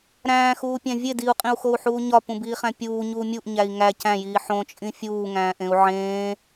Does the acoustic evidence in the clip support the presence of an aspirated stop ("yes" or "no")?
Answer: no